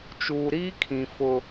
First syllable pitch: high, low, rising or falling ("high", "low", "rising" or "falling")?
low